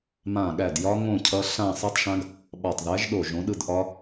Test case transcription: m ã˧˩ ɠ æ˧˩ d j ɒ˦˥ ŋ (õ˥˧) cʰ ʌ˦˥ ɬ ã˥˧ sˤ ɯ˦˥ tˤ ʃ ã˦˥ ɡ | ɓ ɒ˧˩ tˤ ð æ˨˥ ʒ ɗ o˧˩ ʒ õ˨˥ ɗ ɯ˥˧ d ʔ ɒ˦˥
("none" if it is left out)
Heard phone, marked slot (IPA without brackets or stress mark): õ˥˧